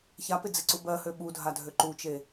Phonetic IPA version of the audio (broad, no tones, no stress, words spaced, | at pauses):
çapɪd͡zɪǀu bɜhø ɓudʱadʱø ǃut͡ʃe